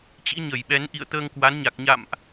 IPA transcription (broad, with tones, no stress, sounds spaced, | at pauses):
t͡ɕ ḭ˧˥ ɲ ə˧˩ j ɓ ɛ˨˦ n ʔ ḭ˧˨ ə̯ t̪ əː˧ ŋ k w a˨˦ n ɲ a˨˩ k̚ ɲ a̰˧˨ m ʔ